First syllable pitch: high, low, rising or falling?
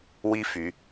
high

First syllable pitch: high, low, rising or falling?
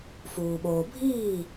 low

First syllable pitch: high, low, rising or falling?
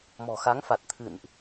low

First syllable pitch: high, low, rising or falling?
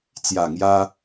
low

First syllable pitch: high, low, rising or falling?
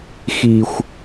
low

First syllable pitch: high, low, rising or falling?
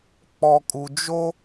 low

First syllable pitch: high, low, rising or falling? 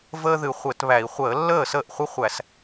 high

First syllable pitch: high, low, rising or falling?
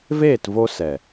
falling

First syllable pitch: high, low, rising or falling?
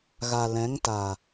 low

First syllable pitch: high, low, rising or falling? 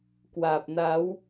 low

